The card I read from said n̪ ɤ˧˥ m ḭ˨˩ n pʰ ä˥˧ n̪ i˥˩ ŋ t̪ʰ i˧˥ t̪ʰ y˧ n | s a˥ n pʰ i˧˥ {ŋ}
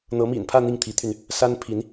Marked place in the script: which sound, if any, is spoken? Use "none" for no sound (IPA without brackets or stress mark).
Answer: n